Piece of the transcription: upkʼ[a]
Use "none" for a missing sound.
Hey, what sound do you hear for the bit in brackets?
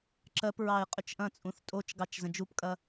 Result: ɐ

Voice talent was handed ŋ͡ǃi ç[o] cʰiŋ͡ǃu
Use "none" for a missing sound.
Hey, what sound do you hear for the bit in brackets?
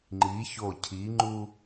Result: o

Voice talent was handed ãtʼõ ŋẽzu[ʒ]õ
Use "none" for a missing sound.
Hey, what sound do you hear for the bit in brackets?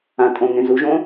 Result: ʒ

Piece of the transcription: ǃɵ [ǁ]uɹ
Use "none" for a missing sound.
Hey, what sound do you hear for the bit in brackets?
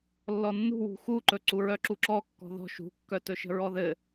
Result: ǀ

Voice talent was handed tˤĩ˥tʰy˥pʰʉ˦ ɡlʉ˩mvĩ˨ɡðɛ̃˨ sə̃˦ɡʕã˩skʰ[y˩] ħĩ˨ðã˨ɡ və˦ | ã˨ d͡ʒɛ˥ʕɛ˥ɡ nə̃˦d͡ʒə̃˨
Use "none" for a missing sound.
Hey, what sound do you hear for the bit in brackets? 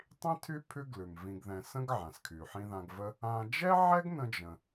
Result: y˩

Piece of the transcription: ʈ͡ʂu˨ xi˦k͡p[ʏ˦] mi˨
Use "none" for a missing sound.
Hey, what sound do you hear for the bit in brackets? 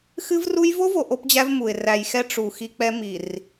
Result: ɛ˦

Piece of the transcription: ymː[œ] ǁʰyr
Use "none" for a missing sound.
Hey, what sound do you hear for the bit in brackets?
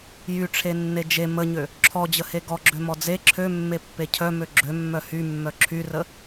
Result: œ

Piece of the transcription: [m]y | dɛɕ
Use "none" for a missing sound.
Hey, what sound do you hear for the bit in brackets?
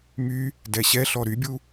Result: m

